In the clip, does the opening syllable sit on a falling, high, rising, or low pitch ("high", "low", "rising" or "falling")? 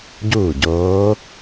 falling